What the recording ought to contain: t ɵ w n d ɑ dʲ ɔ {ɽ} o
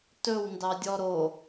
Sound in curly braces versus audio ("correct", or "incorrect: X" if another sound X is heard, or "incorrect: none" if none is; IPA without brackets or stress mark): incorrect: ɾ